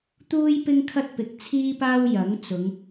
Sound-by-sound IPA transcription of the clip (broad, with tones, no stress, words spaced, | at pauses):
t̪uː˥jpɪ˥ŋkʰɐ˥t̚ pɪ˨˥k̚t͡sʰiː˥paː˥w jɐ˨˥ŋt͡sʊ˨˧ŋ